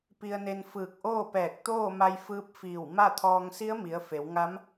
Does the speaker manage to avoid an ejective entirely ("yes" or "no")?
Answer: yes